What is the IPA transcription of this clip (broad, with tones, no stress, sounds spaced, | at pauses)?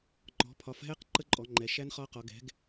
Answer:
ŋ͡ǃ ɔ̤˨˦ pʰ ɒ˨˦ f ɦ ɛ˦˥ q ǃ ə˦˥ ǃʼ ɔ˨˦ ŋ͡ǃ ɛ˨˦ ʃ æ˦˥ n χ ɒ˦˥ q ɔ˨˦ ɡ ɛ̤˨˦ ɡ